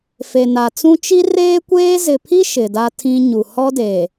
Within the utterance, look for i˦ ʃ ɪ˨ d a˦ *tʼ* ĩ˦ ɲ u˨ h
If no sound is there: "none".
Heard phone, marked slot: tʰ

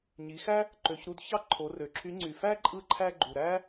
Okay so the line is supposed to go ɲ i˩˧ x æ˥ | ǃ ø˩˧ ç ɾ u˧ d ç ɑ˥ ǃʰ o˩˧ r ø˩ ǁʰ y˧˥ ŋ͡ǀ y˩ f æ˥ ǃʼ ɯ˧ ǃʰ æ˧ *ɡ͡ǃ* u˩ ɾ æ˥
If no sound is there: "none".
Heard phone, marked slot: ɡ͡ǃ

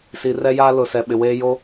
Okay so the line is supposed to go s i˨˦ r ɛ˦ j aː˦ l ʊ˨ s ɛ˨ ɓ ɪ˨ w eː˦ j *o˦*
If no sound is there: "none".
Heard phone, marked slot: o˦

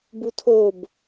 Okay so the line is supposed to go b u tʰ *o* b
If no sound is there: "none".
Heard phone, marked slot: o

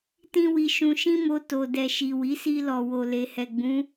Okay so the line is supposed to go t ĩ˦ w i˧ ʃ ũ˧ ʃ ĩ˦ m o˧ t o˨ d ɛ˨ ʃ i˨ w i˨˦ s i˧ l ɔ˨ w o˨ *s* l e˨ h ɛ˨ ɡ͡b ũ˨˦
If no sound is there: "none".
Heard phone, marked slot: none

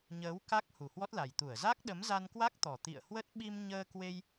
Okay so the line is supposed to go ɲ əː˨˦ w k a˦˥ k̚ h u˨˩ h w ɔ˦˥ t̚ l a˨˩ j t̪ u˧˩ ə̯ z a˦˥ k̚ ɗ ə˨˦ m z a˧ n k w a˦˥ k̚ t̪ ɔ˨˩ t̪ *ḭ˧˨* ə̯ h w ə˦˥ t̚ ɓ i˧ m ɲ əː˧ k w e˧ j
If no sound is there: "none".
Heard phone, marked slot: ḭ˧˨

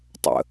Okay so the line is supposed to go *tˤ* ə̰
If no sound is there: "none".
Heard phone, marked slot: tˤ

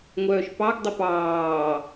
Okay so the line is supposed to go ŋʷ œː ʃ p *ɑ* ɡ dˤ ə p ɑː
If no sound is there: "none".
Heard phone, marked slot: ɑ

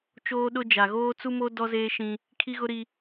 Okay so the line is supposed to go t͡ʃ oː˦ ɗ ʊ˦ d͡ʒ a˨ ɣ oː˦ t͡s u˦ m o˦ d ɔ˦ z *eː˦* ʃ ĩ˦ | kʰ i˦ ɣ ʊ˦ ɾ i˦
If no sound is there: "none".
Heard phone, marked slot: eː˦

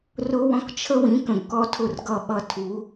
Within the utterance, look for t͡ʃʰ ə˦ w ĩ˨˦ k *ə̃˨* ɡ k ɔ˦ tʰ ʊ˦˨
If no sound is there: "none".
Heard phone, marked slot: ə̃˨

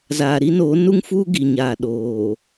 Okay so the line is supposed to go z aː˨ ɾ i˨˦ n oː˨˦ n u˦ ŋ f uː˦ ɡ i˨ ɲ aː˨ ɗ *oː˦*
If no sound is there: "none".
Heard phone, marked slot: oː˨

